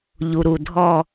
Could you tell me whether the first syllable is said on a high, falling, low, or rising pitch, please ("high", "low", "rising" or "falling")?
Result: low